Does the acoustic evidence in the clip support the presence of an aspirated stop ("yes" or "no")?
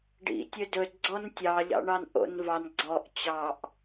no